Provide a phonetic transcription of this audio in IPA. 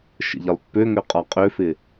ʃə̰ʎɪlˠpːøŋø qʼɒqʼøfɪ

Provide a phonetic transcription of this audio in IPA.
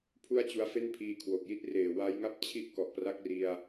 pʰu˥˩a̯t͡ɕu˧a̯fe˥˩npʰiː˧ kʰwo˨˩k̚ji˥˩t̚ reː˨˩wa˦˥jŋa˥˩p̚ t͡ɕʰi˥˩ʔkɔ˨˩ʔpra˥˩k̚ri˧a̯

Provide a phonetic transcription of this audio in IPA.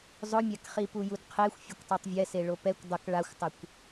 zˤʊmʲakχi pujudqʰexʷ fʲɛkʷtˤatˤvʲɛse ɭopɛkʷ dˤʊk ɭaxʷtˤɪkʷ

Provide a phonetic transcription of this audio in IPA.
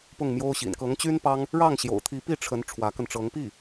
pʊ˥˩ŋmjo˥ʊ̯ɕḭ˨˩n kɤ˧˥ŋt͡ɕy˥npɑ˥ŋ | ɻɑ˥˩ŋɕjo̰˨˩ʊ̯t̪ʰi˧˥ pi˥˩ʈ͡ʂʰə˧˥n ʈ͡ʂʰwä˧˥kə˧nʈ͡ʂɤ˧˥ŋpi˥˩

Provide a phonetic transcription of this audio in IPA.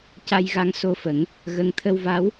ca˧jɣa˧ŋso˧fə˨˩˦ŋ | ɣə˧ŋ t̪ʰə˧wva˧˥w

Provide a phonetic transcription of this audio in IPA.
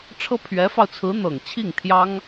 ʈ͡ʂʰɤ˥pʰɥɛ˧˥fɑ˧ʊ̯t͡sʰɹ̩˧˥ n̪ɤ˨˩ŋt͡ɕʰi˥˩ŋ t̪ʰjɑ˥ŋ

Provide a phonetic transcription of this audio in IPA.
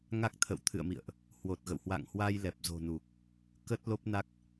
ŋa˦˥k̚t̪ʰə̰˧˨w t̪ʰɨ̰˧˨ə̯mḭ˧˨ə̯ʔ | hwo˨˩t̚ɣə̰˧˨whwa̰˧˨ŋhwa˧j lɛ˨˩p̚zo̤˨˩nu˨˩k̚ | kə˦˥t̚lo˦˥p̚na˦˥k̚

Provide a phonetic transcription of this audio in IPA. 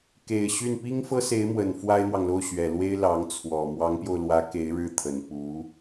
ke˨˩ɪ̯ɕy˥˩n pi˥ŋfɤ˥se˧˥ɪ̯mwə˨˩n fwa˥ɪ̯n̪wɑ˨ŋlo˥˩ʊ̯ ɕɥɛ˨˩lwe˥ɪ̯ lɑ˧˥ŋ t͡sʰwɔ˨˩ mwɑ˧˥ŋpjo˧ʊ̯lwä˧˥ ke˧˥ɪ̯ ɻɻ̩˥˩t̪ʰə˨˩n pu˧˥

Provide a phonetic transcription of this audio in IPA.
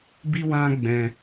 bi˦wã˦ɡ͡bɛ̃˧

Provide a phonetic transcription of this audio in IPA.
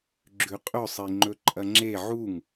ɡ͡ǁʉqʼɵ sˤiŋ͡ǃɵǃʼɐŋ͡ǁe ʕuŋ

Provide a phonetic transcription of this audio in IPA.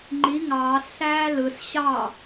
ŋ͡ǃi ŋɑːsɬæː lɯs ɕɑ

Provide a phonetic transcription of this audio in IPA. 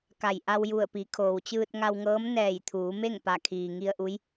ka˧˩j ʔa˧wju˧˩ə̯pi˩˧ kʰoː˩wt͡ɕɯː˧t̚ŋa˧wŋɤː˧˥m nɛː˧˩jt̪ʰuː˩˧me˥˨ŋ pa˧˩ kʰiː˩ŋi˧ə̯ʔu˧˥j

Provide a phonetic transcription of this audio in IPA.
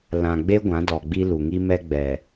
lã˨ɡ͡be˦ ɡʷã˨˦dɔ˨ɡ͡bi˦ lu˨ŋi˦mɛ˦ ɡ͡bɛ˨

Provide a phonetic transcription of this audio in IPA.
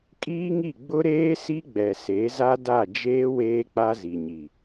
kʼiː˦ŋi˦˨ ɡ͡bʊ˦ɾeː˦si˦ ɡ͡bɛ˨se˨˦za˦ da˦˨d͡ʒeː˦ weː˦k͡pa˦ zi˨ɲi˨

